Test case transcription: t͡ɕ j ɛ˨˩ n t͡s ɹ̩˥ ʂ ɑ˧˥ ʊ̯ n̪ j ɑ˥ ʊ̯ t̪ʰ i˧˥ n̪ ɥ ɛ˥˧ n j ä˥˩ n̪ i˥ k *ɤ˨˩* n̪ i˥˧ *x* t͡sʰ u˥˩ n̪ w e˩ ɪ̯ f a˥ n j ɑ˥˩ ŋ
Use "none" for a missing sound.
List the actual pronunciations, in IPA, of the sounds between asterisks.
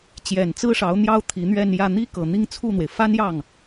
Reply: ɤ˨˩, ŋ

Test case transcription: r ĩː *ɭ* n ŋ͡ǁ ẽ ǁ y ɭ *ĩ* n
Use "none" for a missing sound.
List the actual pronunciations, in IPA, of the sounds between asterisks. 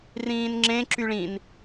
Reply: none, ĩ

